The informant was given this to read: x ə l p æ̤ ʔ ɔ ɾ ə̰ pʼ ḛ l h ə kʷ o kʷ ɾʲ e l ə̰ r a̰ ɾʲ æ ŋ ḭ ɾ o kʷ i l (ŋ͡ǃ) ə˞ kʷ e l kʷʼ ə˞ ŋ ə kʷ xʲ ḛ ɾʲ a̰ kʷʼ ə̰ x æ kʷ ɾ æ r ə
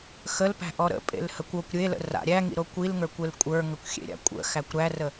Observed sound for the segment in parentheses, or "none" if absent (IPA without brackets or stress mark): ŋ